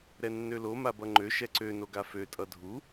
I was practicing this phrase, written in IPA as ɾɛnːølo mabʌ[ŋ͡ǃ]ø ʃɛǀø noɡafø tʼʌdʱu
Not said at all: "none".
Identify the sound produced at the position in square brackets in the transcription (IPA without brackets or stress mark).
ŋ͡ǃ